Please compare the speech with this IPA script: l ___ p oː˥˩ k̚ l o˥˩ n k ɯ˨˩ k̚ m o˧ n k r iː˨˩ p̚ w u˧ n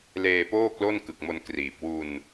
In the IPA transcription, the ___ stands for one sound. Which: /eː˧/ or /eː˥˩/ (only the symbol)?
eː˧